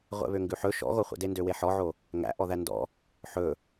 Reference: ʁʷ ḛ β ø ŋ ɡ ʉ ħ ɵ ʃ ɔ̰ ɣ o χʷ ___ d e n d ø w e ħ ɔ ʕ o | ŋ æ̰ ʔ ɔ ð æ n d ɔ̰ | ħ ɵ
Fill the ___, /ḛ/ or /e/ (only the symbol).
ḛ